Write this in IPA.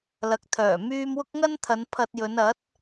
l ɐ˨˥ k̚ t̪ʰ œː˨˩ m yː˧ m w ʊ˥ k̚ ŋ ɐ˥ n t̪ʰ ɐ˨˧ n pʰ ɐ˧ t̚ j ɵ˨˧ n ɐ˨˥ t̚

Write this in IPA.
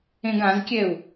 ẽ ɡ ã z kʲ ɛ u̯

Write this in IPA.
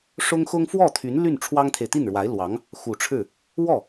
ʂ ʊ˥ ŋ x ʊ˥ ŋ f w ɔ˥˩ t̪ʰ y˧˥ n l y˥˩ n ʈ͡ʂʰ w ɑ˥ ŋ t̪ʰ e˨ ɪ̯ t̪ i˥˩ n ɻ w a˧˥ ɪ̯ l w ɑ˧˥ ŋ | x u˨˩ ʈ͡ʂʰ ɻ̩˥˩ | w ɔ˥˩

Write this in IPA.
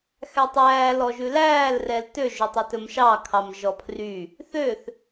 x æ tˤ æː l ɔ ʒ ʉ l æː l r ɛ l t ø ʒ ɵ tˤ ɛ t ɵ m ʃ ɑ kʰ ɑ m ʒ ɔ pʰ r y | θ ø θ

